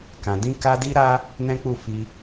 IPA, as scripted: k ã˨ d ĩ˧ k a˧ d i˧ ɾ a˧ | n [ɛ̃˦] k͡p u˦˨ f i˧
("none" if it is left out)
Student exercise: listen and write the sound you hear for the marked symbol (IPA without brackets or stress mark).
ɛ̃˦